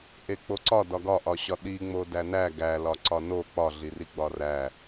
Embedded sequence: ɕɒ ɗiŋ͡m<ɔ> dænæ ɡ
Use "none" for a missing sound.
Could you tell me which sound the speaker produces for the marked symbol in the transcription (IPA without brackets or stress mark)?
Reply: o